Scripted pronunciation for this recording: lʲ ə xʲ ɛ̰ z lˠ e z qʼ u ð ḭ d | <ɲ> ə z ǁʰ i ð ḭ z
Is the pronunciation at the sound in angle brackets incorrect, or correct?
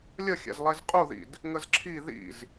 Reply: incorrect